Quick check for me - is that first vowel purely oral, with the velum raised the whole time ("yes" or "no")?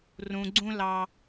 no